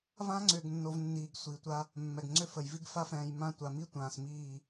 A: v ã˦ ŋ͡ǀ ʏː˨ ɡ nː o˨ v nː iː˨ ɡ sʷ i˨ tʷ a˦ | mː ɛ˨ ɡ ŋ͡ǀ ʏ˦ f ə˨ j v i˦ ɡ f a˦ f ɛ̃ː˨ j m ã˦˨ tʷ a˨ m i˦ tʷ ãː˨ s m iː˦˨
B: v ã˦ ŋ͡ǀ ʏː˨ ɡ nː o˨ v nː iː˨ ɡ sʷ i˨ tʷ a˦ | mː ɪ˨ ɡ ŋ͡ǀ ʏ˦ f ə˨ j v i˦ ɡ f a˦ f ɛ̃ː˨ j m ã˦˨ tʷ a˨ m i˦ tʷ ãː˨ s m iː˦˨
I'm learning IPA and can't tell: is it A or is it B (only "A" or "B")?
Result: A